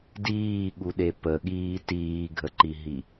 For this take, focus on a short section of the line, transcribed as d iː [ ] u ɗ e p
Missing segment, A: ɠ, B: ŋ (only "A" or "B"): A